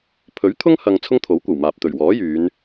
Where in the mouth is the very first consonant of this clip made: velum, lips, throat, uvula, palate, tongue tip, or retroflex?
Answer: lips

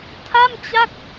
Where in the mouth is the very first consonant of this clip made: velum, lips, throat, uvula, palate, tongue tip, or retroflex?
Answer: tongue tip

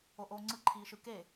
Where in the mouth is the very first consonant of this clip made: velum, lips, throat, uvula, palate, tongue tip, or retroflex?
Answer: throat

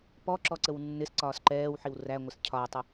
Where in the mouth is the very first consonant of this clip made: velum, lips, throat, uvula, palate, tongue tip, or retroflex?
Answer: lips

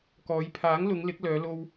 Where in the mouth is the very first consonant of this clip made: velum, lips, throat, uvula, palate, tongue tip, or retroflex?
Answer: velum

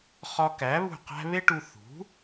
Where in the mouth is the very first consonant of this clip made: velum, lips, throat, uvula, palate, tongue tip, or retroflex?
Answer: uvula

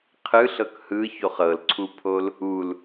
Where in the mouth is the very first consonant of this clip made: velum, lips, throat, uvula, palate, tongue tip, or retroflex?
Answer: uvula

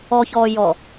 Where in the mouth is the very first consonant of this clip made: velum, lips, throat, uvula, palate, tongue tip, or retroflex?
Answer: palate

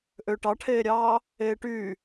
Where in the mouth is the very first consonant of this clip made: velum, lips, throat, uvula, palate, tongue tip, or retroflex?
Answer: throat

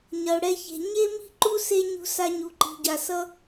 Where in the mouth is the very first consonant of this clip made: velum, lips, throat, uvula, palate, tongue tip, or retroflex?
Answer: palate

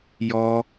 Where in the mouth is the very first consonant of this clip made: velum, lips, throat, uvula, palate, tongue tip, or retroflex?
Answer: palate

